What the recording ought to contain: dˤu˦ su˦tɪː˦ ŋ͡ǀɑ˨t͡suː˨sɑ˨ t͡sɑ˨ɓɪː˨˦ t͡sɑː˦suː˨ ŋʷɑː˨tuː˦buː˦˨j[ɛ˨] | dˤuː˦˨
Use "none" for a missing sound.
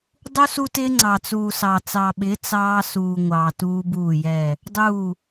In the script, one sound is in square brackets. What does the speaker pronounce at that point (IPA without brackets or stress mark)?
ɛ˦˨